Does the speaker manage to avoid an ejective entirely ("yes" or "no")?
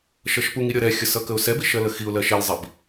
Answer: yes